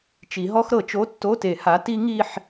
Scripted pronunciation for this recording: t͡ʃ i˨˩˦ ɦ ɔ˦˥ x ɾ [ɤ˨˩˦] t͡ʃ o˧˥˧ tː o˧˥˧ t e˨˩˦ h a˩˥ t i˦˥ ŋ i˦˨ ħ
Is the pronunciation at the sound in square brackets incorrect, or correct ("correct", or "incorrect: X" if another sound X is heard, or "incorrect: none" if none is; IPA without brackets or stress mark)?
correct